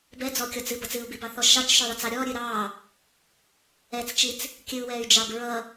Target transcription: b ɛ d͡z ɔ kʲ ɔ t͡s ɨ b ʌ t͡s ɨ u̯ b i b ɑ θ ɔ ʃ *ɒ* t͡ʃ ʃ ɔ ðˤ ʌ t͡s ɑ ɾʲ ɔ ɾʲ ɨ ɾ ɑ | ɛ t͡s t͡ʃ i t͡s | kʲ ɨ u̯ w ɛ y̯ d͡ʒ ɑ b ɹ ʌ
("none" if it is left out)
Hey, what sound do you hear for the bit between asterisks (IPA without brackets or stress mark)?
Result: ɑ